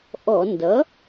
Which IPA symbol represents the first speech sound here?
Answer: ʔ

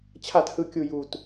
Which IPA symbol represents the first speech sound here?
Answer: t͡ɕʰ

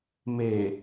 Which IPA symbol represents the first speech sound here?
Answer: m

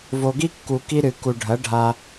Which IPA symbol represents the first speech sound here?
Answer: v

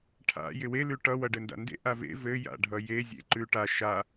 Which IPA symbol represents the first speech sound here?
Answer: ʈʰ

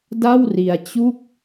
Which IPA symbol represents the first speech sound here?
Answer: d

